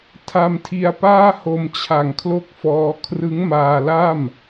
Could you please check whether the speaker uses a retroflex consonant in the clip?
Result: no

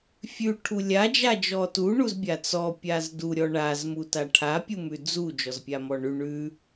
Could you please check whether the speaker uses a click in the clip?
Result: no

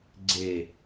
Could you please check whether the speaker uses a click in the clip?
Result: yes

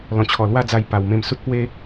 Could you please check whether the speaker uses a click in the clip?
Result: no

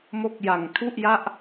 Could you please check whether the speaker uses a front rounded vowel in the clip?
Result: no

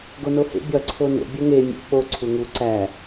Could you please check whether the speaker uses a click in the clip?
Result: yes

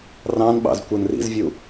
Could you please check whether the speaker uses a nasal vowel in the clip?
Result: yes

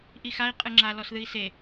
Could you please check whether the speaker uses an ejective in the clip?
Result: yes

